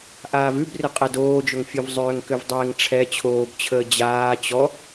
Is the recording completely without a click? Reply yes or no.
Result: yes